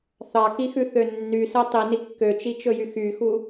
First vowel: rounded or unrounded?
unrounded